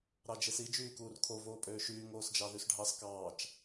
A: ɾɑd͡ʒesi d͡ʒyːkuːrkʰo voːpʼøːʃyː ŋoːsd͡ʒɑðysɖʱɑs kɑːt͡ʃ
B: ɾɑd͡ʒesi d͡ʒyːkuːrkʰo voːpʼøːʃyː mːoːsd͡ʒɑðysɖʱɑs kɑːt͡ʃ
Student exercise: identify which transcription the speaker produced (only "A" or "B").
A